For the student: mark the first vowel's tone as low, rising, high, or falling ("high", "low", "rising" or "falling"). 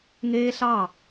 high